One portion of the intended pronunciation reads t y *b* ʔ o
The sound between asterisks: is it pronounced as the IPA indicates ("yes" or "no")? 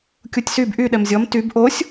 yes